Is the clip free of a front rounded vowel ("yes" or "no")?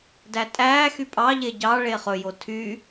no